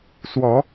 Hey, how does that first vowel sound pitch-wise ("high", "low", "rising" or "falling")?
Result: rising